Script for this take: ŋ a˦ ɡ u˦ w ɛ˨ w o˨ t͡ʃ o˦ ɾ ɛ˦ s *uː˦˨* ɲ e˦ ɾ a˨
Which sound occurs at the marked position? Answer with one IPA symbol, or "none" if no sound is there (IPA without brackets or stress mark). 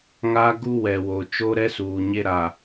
uː˨